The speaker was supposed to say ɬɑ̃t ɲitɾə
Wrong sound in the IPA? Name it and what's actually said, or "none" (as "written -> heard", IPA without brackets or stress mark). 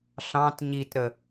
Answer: none